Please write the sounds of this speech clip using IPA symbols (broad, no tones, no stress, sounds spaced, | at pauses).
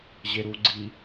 ʑ e ɾ u ɡ͡ǀ i